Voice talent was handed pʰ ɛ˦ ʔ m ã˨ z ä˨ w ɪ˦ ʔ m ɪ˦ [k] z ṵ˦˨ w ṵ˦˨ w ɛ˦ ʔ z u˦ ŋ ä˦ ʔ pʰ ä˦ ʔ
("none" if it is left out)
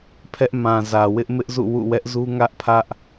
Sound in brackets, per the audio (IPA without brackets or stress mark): ʔ